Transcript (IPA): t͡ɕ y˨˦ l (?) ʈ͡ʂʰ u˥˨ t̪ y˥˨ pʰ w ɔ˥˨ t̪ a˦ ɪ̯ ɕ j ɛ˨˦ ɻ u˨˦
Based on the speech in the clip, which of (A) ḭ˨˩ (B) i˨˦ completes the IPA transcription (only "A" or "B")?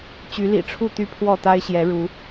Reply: A